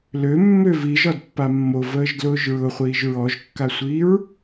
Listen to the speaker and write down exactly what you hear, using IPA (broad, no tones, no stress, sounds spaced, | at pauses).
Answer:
l ø mː ø v i ʒ ɒ d pː a mː o v əː ʒ d l ʊː ʒ ɹ ʊ χʷ iː ʒ ɹ ɔ ʒ kː a sʷ iː ɹ